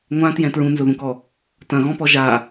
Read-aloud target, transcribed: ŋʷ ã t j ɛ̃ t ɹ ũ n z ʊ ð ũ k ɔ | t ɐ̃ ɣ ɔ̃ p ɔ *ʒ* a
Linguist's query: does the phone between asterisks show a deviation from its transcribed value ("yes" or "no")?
no